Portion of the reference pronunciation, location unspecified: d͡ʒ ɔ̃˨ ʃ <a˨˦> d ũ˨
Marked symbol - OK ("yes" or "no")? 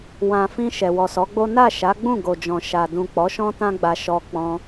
no